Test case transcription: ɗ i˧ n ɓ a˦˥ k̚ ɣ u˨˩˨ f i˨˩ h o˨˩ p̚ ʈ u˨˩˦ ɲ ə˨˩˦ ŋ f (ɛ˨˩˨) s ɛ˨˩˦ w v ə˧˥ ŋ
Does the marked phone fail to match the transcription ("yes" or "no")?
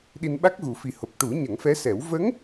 yes